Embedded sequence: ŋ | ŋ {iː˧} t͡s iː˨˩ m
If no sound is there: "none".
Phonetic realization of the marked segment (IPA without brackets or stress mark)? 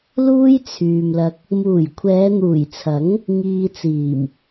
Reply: iː˧